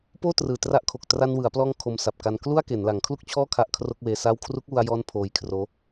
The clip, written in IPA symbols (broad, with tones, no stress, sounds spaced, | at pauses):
p oː˥˩ t r ɯː˨˩ t r a˦˥ ʔ kʰ o˨˩ k̚ t r a˧ n w ɯ˩˦ a̯ p l ɔː˧ ŋ kʰ o˧ m s a˨˩ p̚ k a˧ n k l u˥˩ a̯ k e˩˦ n l a˩˦ ŋ kʰ l u˥˩ k̚ t͡ɕʰ ɔː˥˩ kʰ a˥˩ ʔ kʰ r o˥˩ k̚ w eː˧ s aː˥˩ w kʰ r u˦˥ k̚ w u˧ a̯ j ɔː˦˥ n pʰ oː˧ j kʰ r oː˦˥